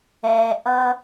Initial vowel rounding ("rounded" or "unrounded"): unrounded